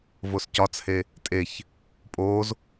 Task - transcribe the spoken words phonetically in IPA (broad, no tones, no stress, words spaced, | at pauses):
voscɒt͡she | tʼeç | pʼoːz